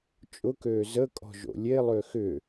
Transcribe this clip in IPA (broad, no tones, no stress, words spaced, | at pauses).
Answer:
t͡ʃʼʊkøː zəkʼɔ̤ ʒo̰lʲelˠø xʏ